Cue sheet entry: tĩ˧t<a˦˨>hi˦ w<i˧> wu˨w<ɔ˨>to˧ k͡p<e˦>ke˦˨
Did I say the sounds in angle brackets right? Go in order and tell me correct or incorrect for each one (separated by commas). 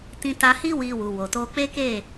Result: incorrect, correct, incorrect, correct